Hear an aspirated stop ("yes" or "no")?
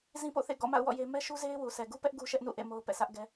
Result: no